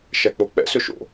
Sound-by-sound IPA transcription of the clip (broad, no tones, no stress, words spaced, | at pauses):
ʃæk͡pok͡pɛ̰ søʃo̰